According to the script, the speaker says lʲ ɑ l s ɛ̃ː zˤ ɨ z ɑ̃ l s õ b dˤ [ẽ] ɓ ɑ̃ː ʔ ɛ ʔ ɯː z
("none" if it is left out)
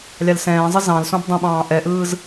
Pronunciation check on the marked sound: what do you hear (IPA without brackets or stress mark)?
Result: ẽ